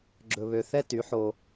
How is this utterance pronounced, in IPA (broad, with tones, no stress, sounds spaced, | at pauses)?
ɡ͡ǁ ɵ˧ β ø˧ θ ɛ˦ t y˨˦ ħ o˧